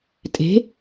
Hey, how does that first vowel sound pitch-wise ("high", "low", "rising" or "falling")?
rising